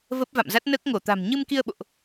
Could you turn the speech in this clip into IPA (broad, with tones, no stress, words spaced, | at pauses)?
və˦˥p̚va̰˧˨mza˦˥t̚ nəː˦˥k̚ŋo˧˩t̪a̤˨˩m ɲɨ˧mki˧ə̯ɓo̰˧˨ʔ